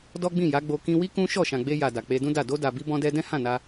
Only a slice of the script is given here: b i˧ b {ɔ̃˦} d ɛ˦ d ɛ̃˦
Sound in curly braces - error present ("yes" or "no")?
no